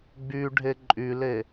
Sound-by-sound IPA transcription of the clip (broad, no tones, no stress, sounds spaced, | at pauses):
ɡ͡b y ɖʱ e ǃʼ y l e